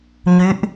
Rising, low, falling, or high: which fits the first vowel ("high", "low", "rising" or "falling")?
rising